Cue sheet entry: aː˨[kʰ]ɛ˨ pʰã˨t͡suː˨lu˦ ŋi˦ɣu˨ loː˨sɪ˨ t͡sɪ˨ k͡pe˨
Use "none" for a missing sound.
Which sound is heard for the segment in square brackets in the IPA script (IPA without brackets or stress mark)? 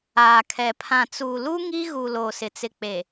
kʰ